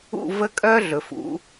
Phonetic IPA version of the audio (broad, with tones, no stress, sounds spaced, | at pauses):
ṵ˥˧ v ə˥˧ kʼ œ˥ ɮ ɵ˩˧ f ṵ˩˧